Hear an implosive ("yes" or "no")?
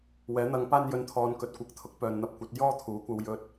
no